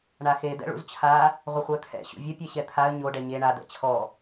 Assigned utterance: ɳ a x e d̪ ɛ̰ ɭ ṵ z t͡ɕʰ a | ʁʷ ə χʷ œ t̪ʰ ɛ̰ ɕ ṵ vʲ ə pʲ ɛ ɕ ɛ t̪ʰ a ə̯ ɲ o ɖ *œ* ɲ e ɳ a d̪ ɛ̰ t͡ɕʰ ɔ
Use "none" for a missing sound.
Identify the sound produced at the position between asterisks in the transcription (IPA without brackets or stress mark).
ɛ